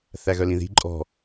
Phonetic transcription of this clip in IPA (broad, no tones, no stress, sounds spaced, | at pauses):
θ æ ɣ œ l ĩ ð i̤ ǃʼ ɔ̤